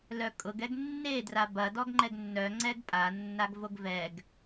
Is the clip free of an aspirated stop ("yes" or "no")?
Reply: yes